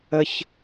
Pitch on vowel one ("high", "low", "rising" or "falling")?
high